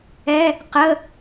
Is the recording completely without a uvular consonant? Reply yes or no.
no